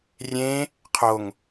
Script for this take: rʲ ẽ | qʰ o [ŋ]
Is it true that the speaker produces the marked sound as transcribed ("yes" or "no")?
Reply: yes